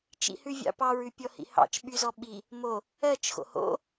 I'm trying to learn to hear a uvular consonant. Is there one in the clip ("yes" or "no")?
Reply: no